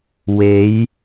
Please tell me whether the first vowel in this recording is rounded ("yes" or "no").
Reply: no